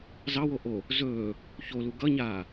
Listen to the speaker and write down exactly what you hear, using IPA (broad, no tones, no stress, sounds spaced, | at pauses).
z ɑ w o ʔ o | z ɵː | ç o l u ɡ ʌ ɲ aː